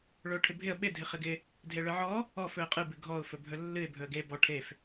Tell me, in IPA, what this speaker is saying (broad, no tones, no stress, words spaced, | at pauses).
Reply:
ɭɵʊ̯ʈʰɪbʱɪə̯ ɓɪ dʱɪχɪɡɪ | dʱeɭɨʕɔ | ɔf ɵə̯qʼɨ bɨɡʱɔʊ̯ fɵbʱɵlːɨɪ̯ bʱɵə̯ɡe bɔ ʈʰef